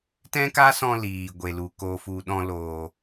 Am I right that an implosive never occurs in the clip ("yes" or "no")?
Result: no